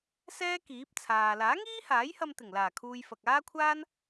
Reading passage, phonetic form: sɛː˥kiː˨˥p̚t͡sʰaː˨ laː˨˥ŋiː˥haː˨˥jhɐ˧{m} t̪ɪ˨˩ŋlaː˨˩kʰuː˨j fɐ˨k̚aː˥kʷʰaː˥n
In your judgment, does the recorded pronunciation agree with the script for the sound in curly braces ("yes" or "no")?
yes